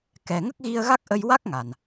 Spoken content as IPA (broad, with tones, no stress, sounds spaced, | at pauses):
k ɛ˨˩ ŋ ə˦˥ k̚ ɣ i˧ ə̯ ɣ a˦˥ k̚ ʔ ə˧ j w a˦˥ k̚ ŋ a˨˩ n